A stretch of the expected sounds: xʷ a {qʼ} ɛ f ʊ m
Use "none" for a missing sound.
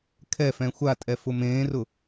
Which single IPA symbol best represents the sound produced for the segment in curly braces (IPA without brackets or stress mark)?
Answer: tʼ